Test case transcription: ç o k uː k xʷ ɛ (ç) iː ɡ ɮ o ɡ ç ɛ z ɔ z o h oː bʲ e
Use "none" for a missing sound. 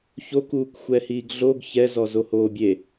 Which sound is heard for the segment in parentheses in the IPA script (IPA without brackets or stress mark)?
h